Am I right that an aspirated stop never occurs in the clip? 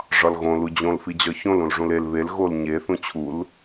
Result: no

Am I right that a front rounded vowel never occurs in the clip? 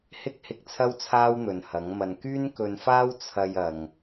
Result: no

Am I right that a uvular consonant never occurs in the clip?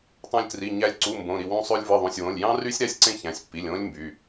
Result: yes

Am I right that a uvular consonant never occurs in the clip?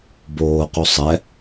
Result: no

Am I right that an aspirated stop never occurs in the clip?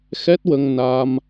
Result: yes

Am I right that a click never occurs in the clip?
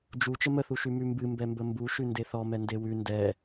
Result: yes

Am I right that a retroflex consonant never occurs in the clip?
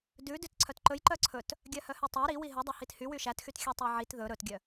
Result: yes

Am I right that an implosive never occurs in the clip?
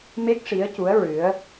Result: yes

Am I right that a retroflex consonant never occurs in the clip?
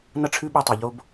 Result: no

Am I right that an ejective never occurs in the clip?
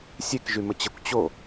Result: yes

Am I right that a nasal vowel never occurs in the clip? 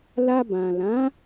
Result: no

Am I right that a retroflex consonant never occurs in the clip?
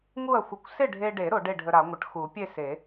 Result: no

